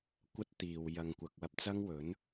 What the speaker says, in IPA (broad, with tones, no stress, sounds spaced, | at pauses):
kʷ ɐ˥ t̚ t̪ iː˨ w j ɐ˨ ŋ kʷ ɐ˨ k̚ w ɐ˧ p̚ t͡s ɐ˥ ŋ w ɵ˨˥ n